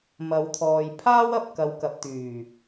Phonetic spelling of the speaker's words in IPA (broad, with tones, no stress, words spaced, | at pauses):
mɐ˨˧wt̪ʰɔː˨jpʰaː˥w ɐ˨p̚ kɐ˨wkɐ˨p̚t̪yː˨˩